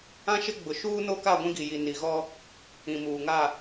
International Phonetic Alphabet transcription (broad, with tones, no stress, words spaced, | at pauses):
ã˦ʃɪ˦ ɡ͡bʊ˨ʃuː˦no˦ ka˦˨ɡʷĩ˦ɡi˨ji˨ ni˨ɣɔ˦ | ĩ˨muː˨ŋa˦˨